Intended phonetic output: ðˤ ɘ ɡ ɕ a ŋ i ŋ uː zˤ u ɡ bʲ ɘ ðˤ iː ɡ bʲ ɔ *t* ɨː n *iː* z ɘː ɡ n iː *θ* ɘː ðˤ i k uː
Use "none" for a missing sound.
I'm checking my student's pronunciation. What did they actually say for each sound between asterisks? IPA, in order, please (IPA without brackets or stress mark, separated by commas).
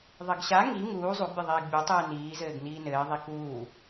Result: tˤ, iː, n